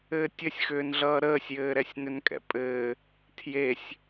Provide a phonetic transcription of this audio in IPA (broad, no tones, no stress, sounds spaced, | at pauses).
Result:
ɘː tʲ ɘ sʲ x ʏː n ɮ ʌː ɾ əː sʲ j ɘː ɾ ɛ sʲ n ʏ n kʼ ɛ̰ pʼ ɘː | tʰ j e sʲ